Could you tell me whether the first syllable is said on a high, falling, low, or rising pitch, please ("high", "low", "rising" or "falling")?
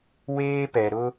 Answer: high